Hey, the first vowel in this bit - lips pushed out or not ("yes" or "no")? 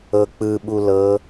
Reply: no